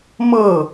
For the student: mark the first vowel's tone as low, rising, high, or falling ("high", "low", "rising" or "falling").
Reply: falling